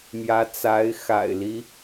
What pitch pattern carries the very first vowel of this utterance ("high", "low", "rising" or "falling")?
rising